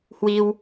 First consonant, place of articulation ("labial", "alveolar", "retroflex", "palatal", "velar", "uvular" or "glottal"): glottal